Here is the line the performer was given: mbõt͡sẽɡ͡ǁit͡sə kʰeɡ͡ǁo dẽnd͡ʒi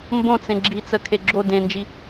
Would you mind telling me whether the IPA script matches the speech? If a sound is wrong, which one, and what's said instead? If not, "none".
none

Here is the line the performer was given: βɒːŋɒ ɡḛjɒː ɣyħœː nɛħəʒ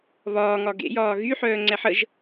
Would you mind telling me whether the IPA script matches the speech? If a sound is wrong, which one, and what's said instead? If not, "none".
n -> ŋ͡ǀ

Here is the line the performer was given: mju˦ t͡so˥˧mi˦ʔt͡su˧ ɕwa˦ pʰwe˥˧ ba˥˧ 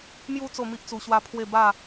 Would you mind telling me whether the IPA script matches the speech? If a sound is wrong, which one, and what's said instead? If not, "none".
none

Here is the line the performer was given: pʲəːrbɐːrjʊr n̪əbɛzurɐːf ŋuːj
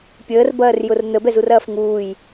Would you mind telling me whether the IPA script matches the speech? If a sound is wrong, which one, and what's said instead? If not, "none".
none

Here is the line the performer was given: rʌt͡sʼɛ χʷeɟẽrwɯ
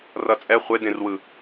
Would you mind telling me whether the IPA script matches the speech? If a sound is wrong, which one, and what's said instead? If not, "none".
ɟ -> d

